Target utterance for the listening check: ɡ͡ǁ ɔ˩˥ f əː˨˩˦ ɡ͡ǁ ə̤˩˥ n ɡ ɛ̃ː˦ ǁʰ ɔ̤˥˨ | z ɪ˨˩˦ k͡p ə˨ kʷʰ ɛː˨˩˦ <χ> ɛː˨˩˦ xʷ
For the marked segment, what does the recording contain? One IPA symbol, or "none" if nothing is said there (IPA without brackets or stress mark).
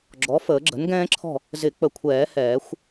h